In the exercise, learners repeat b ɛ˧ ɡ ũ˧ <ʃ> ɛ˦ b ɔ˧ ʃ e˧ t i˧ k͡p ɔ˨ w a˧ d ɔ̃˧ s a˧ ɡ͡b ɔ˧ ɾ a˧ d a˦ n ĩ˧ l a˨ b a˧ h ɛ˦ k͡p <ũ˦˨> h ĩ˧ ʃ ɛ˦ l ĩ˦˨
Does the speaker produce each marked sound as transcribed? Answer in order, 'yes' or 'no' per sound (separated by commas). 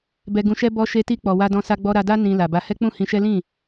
yes, yes